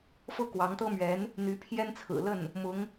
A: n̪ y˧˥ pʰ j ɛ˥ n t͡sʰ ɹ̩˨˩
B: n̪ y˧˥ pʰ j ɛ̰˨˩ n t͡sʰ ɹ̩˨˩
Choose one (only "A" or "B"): A